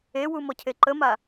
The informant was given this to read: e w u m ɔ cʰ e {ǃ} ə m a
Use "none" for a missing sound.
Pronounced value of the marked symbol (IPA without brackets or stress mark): ǃ